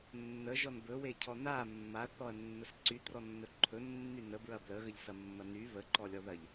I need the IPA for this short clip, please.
nː ə ʒ ɔ n b ɵ w e cʰ ɔ n a mː a θ ɔ ɐ̯ nː ə s ǀ y t r ɔ nː ɵ ǃʰ ɵ nː y n ə b ɹ ɐ b l ə ɣ ə ʎ s ɐ mː ɐ n y β ə ǃ ɔ lʲ ɔ ð ɐ ʎ

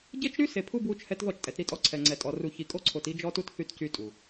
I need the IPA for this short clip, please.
ɟ e˦ t͡ʃ ɾ y˦ s e˨ pʰ u˦ b w u˦ t͡ʃ h ɛ˦ t ð ɔ˦˨ t͡ʃ tʼ ɛ˨ t ɾ i˦ tʼ ɔ˦ ǀʰ ɛ˨ ŋ͡ǀ ɛ˨ tʼ ɔ˨ r u˨ ç i˨ kʼ o˦ ǀʰ o˨ t i˦ d͡ʒ ɔ˦ t u˦ t θ y˦ t c y˦ tʼ u˨

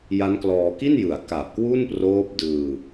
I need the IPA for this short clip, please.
j a˦˥ n k l ɔː˧ k i˥˩ n j ɯ˨˩ a̯ k a˨˩ p̚ k w u˥˩ n p r oː˦˥ p̚ d ɯː˧

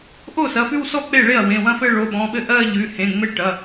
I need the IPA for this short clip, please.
ʔ o˥˩ s ɐ˩˧˩ f ʉ˥˧ w s ɔ˥˧ k͡p e˥˩ ɭ e˥˩ ɐ̯ w ẽ˩˧˩ w ɐ̃˥˧ f ɘ˥˧ ɭ o˩˧˩ ɓ ɔ̃˩˧˩ ɓ ɘ˥˩ ʔ ɜ˥˧ ʎ ʉ˩˧˩ h ẽ˩˧˩ ŋ͡m ɘ˥˩ ʈ ɐ˩˧˩

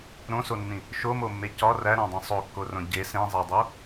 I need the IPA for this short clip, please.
ɾ õ s o nː ĩ | ʃ o m o mː e c ɒ r æ ɾ æ̃ dˤ ĩ sˤ o kː o r õ ɟ e s ẽ zˤ æ dˤ o

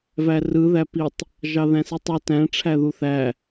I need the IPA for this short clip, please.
v æ r ɯ ð æ p i tˤ | ʒ ɑ ð æ̃ s i tˤ u t æ̃ ʈ͡ʂʰ æ ð u θ æ

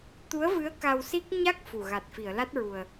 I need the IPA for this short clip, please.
t̪ u˧˥ ə̯ v ɨ˧˥ ə̯ k a˧ w s i˦˥ k̚ ɲ a˦˥ k̚ f u˨˩ ɣ a˨˩ t̚ f i˨˩˨ ə̯ l a˦˥ t̚ ɹ u˨˩ ə̯

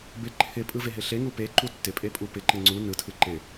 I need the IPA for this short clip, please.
b ɪ ǃʰ ɪ pʼ ɯ v e ɦ ɪ ɬ e ŋ u p e ǃ u tː ɪ pʼ e pʼ u p ɪ ǃ ɪ ŋ͡ǀ u n ɯ tʰ ɯ ǃ ɪ

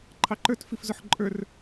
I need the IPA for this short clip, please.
ǃʰ ɑ ǃ ə˞ t f i f z ʊ ħ ǃʼ ə˞ r

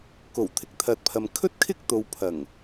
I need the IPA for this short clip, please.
k o˨˩ w t̪ʰ ɪ˨˥ k̚ t̪ʰ ɐ˨ t̚ pʰ ɐ˨ m kʰ ɵ˥ t̚ kʰ ɪ˥ k̚ t̪ o˨ w pʰ ɐ˨˩ ŋ

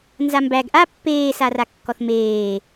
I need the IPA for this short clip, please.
n z a m b æ ɡ ʔ a pː eː s a r a kː ɔ θ m eː

